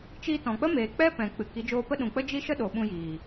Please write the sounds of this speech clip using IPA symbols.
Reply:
t͡ʃi˧tɔ̃˨k͡pə˦ meː˨k͡pɛ˦pɛ̃˨ k͡pɨ˨ki˨˦ d͡ʒoː˧pə˦ɗũ˨k͡pə˦ d͡ʒi˦ʃə˦ɗo˨ ɓũ˧jiː˨

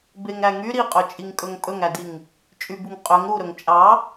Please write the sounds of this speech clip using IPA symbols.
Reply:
beŋɾæŋy ɾiqʼɵt͡ʃʼiŋkʼɵŋ pʼɵŋædiŋ | t͡ʃʼybuŋqʼøŋ ɾuɾɵŋ t͡ʃʼɑ

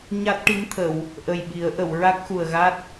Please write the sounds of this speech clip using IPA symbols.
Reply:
ɲa˦˥t̚ʈi˧˥mt̪ʰə˨˩˨w | ʔə˨˩jɓi˨˩˦ə̯ʔə˨˩˨w ɹa˦˥k̚xu˨˩ə̯ɣa˦˥t̚

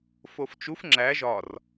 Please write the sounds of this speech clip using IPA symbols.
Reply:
foft͡ʃuf ŋ͡ǁæ ʒɒr

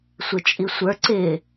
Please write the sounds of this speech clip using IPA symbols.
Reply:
sʷɪt͡ʃʼisʷə˞ ǀɪ

